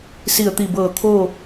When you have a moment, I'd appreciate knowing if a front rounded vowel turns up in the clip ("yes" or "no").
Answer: no